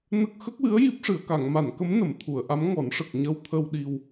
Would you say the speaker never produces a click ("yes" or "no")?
yes